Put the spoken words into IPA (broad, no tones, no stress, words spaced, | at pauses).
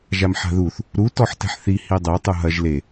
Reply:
ʒamħa̤ðuθ | ɾu tɔħtɛ̤ħθi hidˤe tˤuɦɐʒ le